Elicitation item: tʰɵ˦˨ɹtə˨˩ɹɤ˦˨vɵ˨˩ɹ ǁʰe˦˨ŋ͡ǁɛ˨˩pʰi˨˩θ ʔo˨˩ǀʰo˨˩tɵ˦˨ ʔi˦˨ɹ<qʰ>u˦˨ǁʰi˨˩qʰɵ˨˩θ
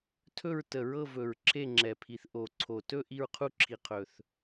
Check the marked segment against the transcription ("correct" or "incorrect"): correct